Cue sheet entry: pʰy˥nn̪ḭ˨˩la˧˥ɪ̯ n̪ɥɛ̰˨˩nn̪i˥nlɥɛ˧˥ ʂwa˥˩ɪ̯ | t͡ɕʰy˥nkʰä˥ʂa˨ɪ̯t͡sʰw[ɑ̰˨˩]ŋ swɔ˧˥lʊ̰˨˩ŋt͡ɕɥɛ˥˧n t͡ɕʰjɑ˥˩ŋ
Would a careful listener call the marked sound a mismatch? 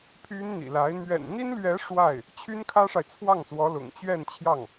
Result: yes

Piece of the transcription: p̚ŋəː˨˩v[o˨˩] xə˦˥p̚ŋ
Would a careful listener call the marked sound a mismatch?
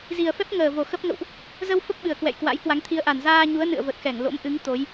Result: no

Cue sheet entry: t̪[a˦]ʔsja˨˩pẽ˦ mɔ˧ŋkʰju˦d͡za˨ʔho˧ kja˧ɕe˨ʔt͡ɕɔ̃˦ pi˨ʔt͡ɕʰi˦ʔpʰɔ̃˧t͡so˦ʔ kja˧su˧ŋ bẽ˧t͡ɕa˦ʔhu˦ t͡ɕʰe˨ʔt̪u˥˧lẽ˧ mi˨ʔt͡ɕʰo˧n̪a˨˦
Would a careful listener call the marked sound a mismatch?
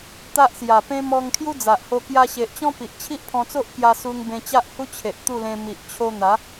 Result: no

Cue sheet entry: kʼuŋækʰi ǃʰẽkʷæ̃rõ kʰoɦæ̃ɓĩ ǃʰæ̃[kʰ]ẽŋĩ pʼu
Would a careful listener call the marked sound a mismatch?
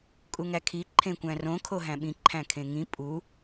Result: no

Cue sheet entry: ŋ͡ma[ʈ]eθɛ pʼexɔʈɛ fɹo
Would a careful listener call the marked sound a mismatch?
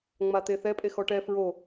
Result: yes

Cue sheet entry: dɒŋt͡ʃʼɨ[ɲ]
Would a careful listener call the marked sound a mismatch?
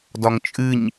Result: no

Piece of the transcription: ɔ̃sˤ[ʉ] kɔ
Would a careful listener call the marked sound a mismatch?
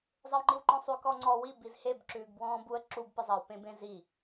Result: no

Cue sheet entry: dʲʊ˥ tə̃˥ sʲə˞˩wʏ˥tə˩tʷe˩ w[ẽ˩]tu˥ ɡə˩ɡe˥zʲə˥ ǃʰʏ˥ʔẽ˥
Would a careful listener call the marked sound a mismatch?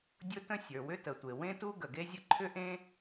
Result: yes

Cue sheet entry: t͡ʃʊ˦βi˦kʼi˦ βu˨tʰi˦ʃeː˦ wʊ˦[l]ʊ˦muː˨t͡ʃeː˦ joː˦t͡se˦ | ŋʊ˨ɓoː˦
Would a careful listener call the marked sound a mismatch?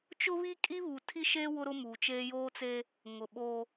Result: yes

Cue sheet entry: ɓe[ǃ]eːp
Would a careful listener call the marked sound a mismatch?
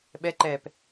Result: no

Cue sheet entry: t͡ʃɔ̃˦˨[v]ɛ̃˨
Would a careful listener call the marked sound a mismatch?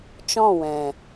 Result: yes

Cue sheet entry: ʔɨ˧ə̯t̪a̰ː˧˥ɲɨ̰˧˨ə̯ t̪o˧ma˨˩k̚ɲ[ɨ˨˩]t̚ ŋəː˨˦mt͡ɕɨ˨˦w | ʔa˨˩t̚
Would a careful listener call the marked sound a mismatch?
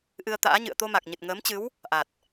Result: no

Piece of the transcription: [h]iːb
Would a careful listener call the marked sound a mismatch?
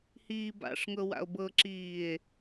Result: no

